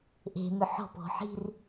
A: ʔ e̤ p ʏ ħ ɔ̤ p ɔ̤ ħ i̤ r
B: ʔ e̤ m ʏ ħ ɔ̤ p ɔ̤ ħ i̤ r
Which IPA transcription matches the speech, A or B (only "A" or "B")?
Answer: B